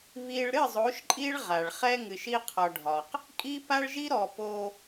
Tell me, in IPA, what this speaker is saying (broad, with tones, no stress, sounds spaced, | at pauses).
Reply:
β i˦ ɭ ɾ ɨ˦˨ zˤ o˨˦ ʃ ǃʼ i˦ ɭ ʁ a˨ ɭ χ ɛ˦ ŋ ɨ˨ ʃ i˦ qʰ ɒ˨ ɖʱ ɒ˨ q | kʼ i˦ p a˦ ɭ ʒ i˦ ɾ ɔ˨ p o˦